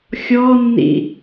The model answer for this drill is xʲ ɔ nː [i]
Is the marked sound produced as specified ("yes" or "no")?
no